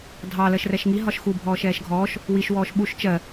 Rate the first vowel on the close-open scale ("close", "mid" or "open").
open